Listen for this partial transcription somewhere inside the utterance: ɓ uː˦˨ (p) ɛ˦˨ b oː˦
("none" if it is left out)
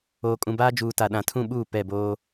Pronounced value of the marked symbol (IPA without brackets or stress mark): p